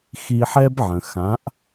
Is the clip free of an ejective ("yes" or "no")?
yes